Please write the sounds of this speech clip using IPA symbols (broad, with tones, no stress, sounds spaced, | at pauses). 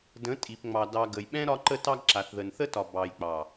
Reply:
d ə̃˨˦ tʼ i˨ p ŋ͡m ɑ˨ d ɑ˨ ɡ ə˨ j ɓ ɛ̃˦ ɾ ɒ˧ ǃ ə˧ t ɑ˧ ɡ ǁ a˨ θ ð ə˨ n θ ə˦ t ɒ˨ b ɑ˨ j k͡p ɑ˨